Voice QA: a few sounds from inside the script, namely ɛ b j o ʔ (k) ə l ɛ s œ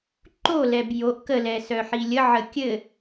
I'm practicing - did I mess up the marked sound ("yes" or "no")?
no